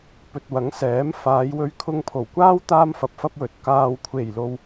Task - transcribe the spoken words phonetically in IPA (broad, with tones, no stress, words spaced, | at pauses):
pɵ˨t̚wɐ˨˥ŋ sɛː˨˥m faː˨˧jwɵ˧ɥ kʰʊ˧ŋpʰo˨˩wkʷaː˥w t̪aː˥mfɐ˨p̚fɐ˥p̚wɵ˨t̚ kaː˨wkʷʰe˨˩jlo˨w